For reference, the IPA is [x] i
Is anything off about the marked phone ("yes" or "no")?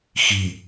no